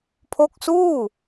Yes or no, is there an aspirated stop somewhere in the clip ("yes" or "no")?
yes